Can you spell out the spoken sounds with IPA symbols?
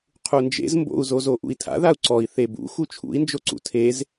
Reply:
qʰund͡ʒḛz mbo̰u̯zo zoʔṵi̯tʰa̰ ðau̯ǀɔi̯ θebṵ xut͡ʃʰṵi̯nd͡ʒoǀṵ tʰez

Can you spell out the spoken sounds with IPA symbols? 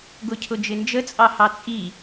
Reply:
ɡʊcʰʊd͡ʒɪnd͡ʒə t͡sʼɑhɑt͡sʼi

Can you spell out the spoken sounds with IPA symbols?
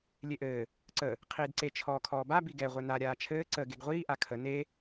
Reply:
lʲeʔɘː | ǀə | qʰiːdǀe t͡ʃʰɔːkʰɔːba biɡɛ ʁʷɘna ɾʲaːt͡ʃʰɘː ǀə ɡeɡʁʷiː ʔakʰə ne

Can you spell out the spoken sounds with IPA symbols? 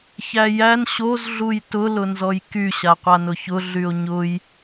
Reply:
çæjæn ɕoz ɮujtʊ lʊnzɔjky ɕaqʷanʊçʊ ɮyo̯ɲʊj

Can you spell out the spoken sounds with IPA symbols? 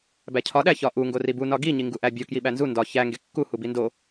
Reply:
bæcʰɒ ɗæçɒʔu ŋɡoribu nɒɡi ɲiŋɡuʔæbʲo kjiɓænzu ndɒ çæ ŋɡekːu hubindo

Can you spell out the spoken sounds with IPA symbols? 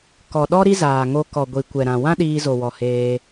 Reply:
kɔ˨ɗɔ˦ ɾi˦zaː˨ŋo˧ kɔ˨ɡʷi˨kʷɛ˨ ɾã˨ wã˦ɗiː˧zo˨wɔ˨ heː˧

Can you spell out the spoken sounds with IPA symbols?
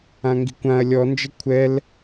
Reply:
ãŋɡi̤kʷãɐ̯ lʲɔnd͡ʒə kʷʰɛl

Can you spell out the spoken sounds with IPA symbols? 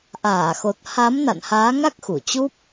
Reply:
ʔaː˧˩xo˨˩t̚ ha˨˦mna̰˧˨n haː˨˦ŋa˦˥k̚ xu˧˩t͡ɕu˦˥p̚

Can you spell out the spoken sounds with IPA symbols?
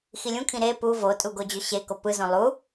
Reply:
xilʲũkʰĩ ɾe pu votʼu ɡod͡ʑøɕeko pɯzõ lˠu

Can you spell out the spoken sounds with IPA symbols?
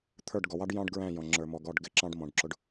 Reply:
t̪ʰə˞˦˨ɖɡɔ˨wɑ˦ɖ jɑ̃˦ɖ ɡɹæ̃˦˨jɔ̃˨ ŋ͡ǁə˞˨mɔ˨ɡɔ˦˨ɖ ɡɪ˦ǁɑ̃˦ɖ mɔ̃˨ɖǁʊ˨ɖ

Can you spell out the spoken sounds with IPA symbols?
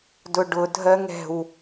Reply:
dʊɖʊ dʱɜŋɛ̤w

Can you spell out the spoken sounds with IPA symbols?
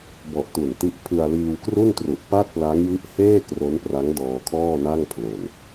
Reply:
bɔ˨˩ʔtu˨˩nti˦˥ʔ pʰɯ˧a̯liː˧wkru˥˩ntru˨˩ʔ pa˥˩t̚pla˦˥ŋji˦˥ʔ heː˥˩ kro˦˥npra˦˥ŋ dɔː˧kʰɔː˥˩ na˥˩ŋpʰlo˨˩n

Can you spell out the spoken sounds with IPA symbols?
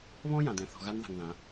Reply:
βɔ̃˦ jã˨dɛ̃˨ θɔ̤˨ɣa˦nða̤˨ŋ ðã˨˦

